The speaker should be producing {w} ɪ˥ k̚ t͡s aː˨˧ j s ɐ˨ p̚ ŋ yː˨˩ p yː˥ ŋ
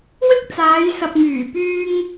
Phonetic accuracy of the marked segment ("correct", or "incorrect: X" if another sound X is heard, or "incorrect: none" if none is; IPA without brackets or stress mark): correct